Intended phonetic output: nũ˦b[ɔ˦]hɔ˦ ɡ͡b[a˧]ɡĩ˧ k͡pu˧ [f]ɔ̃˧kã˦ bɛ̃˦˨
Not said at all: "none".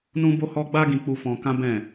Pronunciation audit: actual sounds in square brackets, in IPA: o˦, a˦, f

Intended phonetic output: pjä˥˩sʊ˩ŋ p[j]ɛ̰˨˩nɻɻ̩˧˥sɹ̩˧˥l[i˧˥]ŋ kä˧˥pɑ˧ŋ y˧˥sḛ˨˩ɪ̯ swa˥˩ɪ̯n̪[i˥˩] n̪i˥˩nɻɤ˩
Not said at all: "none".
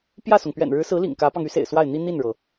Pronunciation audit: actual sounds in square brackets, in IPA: ɥ, ḭ˨˩, i˥

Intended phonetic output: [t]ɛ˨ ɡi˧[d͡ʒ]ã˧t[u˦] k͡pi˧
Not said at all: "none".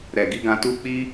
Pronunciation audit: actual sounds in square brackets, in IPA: ɾ, ɡ, u˦

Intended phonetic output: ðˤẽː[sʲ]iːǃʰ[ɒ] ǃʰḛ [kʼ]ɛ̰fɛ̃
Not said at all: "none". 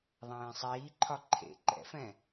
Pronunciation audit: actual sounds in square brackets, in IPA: sˤ, ɒ, ǃ

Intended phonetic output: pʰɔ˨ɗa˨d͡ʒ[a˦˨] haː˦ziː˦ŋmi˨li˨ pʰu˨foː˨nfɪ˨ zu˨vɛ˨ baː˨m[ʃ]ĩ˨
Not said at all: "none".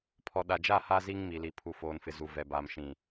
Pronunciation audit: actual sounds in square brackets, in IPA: a˦˨, ʃ

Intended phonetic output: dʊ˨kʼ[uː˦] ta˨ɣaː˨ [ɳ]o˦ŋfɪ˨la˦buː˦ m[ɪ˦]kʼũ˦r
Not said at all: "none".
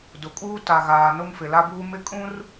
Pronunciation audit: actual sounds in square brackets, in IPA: uː˦, n, ɪ˦

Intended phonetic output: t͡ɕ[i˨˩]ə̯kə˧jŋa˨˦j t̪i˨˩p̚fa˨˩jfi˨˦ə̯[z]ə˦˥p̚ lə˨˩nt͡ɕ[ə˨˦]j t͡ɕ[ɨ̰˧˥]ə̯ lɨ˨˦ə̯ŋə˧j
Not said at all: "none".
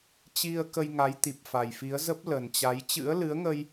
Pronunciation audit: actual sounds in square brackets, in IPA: i˧, z, a˨˦, ɨ̰˧˥

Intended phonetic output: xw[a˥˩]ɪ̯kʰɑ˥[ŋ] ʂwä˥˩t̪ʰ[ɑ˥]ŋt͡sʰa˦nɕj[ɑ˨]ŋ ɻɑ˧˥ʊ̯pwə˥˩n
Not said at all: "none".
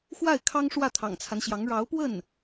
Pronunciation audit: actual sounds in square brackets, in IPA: a˥˩, ŋ, ɑ̰˨˩, ɑ˧˥

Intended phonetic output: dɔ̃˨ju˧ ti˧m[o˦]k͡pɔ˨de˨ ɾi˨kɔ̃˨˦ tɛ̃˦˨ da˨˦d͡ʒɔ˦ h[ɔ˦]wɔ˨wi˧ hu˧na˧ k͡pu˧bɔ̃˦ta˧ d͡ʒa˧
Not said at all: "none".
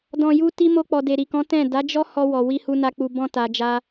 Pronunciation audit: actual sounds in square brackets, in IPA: o˧, ɔ˧

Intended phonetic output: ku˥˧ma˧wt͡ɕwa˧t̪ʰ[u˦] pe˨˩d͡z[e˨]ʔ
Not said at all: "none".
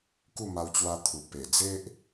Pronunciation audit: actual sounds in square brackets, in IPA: u˨˩, e˦

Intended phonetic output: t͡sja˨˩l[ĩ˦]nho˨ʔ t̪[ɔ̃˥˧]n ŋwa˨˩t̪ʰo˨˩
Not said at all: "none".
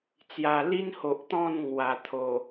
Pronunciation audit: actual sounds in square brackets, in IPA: i˦, ɔ̃˥˧

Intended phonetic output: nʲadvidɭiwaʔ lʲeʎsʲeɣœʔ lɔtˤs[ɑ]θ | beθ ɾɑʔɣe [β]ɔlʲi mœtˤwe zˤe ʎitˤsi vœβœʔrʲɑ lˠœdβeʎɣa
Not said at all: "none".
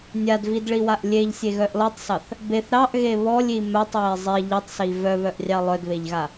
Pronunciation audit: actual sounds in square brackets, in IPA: ɑ, β

